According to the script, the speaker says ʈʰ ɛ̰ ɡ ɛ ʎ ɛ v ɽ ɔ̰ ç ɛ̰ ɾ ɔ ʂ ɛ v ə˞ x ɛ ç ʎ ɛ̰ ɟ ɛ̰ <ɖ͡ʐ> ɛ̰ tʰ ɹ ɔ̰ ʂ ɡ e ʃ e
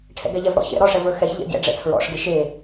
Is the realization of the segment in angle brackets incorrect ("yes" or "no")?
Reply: no